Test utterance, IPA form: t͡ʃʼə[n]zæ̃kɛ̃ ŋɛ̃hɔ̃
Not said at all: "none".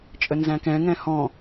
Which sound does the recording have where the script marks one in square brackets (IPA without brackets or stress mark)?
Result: n